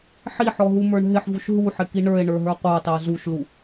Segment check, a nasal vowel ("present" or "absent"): absent